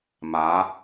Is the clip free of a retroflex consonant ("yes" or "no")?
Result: yes